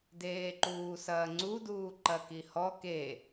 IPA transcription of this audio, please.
d eː ǃ uː s ɐː ŋ͡ǀ u d uː ǃ ɐ k i h ɔ k e

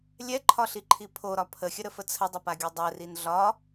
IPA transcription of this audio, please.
lʲ ɛ ǃʰ ɒ ɬ i ǃʰ i pʰ o ɾ ɒ pʰ ə xʲ ə ɾ ə f ə t͡sʰ ə dˤ ə p a ɡʲ o dˤ ɛ r i n ɮ ɒ

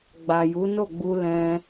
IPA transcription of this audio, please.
ɡ͡b a˨ j u˨˦ n o˦˨ ɡ͡b u˧ l ɛ̃˧

